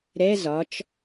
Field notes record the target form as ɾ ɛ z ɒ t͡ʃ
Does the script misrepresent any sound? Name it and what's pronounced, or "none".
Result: none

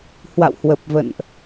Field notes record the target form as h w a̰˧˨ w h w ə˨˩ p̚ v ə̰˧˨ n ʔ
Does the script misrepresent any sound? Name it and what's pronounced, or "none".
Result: none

